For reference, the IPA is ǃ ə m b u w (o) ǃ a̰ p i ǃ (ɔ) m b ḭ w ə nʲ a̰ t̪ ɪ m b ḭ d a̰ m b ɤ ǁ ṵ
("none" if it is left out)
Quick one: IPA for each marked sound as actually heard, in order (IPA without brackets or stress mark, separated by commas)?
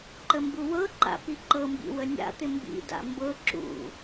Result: ɤ, ɤ